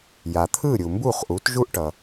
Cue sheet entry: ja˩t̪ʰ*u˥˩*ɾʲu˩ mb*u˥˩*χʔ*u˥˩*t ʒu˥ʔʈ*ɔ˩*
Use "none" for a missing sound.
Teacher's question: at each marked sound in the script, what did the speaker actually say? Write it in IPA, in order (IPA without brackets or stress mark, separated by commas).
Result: ɯ˥˩, u˥˩, u˩˥, ʌ˩